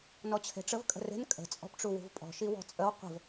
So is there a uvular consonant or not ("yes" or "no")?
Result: yes